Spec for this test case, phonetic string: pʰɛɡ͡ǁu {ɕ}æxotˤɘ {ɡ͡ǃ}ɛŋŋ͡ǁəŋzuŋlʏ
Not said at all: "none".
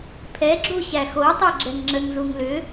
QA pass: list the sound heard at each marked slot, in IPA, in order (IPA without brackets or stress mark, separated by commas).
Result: ɕ, ɡ͡ǁ